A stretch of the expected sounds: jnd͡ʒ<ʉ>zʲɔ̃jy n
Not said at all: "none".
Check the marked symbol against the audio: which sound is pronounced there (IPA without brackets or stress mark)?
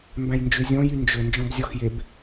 ʉ